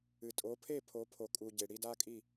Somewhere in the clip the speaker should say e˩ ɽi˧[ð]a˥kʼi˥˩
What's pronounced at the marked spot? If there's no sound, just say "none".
d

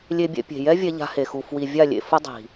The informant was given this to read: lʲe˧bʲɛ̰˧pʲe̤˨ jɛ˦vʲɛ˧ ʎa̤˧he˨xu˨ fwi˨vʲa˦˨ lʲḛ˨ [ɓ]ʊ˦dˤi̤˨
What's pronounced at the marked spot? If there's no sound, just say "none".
f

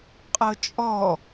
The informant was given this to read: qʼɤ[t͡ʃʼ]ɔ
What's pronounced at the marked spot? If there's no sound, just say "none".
t͡ʃʼ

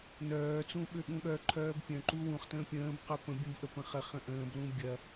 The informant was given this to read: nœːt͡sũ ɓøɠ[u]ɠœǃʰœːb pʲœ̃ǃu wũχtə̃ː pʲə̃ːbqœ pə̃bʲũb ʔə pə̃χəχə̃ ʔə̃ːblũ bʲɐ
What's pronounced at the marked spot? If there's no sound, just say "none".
ũ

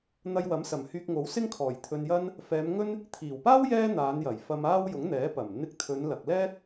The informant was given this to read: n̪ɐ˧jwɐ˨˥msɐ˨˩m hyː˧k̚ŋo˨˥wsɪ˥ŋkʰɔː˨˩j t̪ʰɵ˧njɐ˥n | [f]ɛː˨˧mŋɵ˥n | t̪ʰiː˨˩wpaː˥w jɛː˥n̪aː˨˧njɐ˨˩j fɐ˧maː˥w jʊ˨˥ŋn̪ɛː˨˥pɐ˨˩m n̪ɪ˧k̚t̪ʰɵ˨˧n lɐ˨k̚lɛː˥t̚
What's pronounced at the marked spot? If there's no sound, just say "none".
f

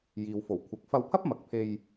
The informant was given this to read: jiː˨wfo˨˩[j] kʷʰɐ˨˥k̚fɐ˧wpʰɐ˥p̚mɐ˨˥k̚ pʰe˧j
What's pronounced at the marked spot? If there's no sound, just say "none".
w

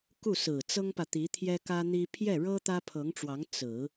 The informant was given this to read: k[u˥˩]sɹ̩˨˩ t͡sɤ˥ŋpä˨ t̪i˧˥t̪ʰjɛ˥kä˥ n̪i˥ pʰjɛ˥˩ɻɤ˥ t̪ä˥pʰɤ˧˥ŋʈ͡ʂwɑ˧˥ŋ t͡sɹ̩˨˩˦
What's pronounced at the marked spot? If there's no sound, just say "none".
u˥˩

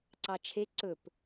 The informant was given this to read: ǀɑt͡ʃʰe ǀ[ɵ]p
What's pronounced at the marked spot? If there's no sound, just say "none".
ɵ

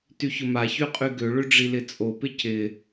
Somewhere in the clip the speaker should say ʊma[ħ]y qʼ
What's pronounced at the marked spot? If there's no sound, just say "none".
ç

